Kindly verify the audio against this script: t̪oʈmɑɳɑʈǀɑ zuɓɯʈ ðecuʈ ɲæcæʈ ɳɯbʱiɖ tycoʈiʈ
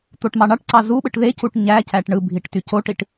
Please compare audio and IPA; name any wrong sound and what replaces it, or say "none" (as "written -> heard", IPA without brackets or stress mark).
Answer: ɖ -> ʈ